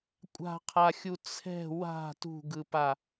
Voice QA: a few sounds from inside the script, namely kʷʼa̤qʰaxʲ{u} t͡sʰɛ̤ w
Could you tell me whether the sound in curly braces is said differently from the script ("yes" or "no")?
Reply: no